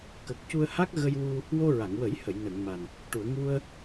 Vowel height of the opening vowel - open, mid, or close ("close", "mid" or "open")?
mid